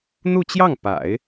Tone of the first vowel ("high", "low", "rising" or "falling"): falling